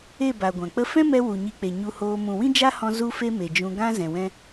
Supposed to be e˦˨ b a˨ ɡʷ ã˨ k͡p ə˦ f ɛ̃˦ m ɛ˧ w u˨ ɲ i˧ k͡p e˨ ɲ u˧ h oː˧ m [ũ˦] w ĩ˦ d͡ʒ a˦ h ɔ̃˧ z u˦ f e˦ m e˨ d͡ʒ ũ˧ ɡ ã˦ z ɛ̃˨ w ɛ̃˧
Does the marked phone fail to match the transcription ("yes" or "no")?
yes